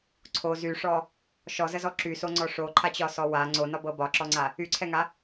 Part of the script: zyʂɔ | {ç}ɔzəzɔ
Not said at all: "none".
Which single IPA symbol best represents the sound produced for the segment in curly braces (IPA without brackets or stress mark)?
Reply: ʃ